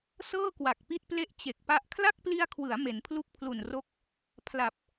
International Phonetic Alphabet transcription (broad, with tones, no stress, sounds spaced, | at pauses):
s ɤː˥˩ k w a˨˩ k̚ p i˦˥ t̚ p l e˦˥ ʔ t͡ɕ e˨˩ k̚ p a˦˥ ʔ kʰ l a˥˩ k̚ p l i˧ a̯ kʰ w ɯ˩˦ a̯ m e˩˦ n pʰ l u˥˩ k̚ pʰ l u˨˩ n r o˦˥ k̚ | pʰ l a˨˩ p̚